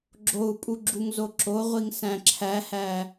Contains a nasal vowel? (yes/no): yes